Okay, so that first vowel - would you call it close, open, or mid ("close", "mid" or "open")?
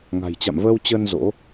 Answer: open